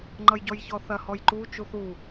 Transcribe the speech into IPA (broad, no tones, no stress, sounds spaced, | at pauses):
ŋ͡ǃ ʌ j ɟ ɔ j ç ɔ θ ɐ h ɔ j ǃ u t͡ʃ u θ u